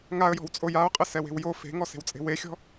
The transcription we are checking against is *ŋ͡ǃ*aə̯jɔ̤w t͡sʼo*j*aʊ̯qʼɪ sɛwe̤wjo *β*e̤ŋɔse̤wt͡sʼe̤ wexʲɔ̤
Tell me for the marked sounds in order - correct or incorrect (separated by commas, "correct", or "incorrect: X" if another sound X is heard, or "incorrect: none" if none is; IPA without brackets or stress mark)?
incorrect: ŋ, correct, incorrect: f